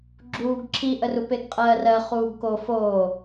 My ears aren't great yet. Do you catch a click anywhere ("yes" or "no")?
yes